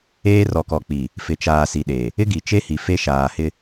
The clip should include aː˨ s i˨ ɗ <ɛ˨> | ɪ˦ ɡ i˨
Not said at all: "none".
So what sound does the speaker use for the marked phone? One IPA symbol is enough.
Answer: e˨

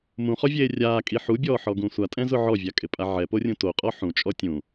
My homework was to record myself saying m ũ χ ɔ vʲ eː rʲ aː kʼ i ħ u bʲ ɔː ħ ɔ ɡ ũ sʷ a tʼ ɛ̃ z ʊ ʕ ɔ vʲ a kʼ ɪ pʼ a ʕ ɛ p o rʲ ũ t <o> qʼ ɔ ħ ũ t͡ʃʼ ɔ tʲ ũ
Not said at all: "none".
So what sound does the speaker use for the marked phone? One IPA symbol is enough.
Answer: o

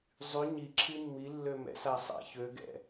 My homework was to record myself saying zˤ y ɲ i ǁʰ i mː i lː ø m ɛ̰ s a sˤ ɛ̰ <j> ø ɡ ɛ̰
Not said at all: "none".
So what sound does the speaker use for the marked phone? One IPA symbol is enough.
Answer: ç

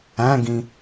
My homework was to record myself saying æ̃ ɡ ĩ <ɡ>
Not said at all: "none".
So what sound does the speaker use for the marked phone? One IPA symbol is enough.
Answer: none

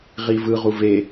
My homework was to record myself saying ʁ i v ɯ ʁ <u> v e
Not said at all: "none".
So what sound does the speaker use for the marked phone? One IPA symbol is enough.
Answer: u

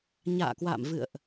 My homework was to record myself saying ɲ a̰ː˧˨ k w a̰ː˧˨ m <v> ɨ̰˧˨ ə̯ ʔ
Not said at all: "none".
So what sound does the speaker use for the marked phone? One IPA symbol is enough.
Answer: v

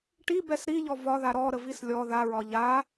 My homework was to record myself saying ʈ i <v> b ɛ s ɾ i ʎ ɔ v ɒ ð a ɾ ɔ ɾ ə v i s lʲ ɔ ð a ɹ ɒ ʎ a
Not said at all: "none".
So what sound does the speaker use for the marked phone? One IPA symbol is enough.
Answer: none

